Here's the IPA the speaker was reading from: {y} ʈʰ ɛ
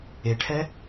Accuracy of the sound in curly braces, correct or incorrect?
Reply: incorrect